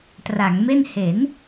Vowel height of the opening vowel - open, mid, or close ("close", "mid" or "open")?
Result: open